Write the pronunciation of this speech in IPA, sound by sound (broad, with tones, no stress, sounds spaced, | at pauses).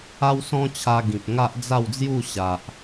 a˦ w s ɔ̃˦ t͡ɕʰ a˧ ɡ ĩ˨ p̚ ŋ a˦ ʔ d͡z a˥˧ w d͡z j u˥˧ ɕ a˨ ʔ